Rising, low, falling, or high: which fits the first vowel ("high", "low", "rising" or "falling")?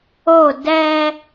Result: falling